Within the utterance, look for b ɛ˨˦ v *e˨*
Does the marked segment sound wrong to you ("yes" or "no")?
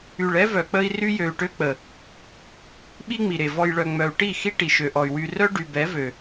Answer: yes